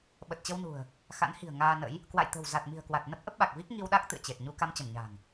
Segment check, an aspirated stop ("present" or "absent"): absent